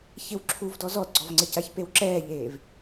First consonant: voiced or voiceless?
voiceless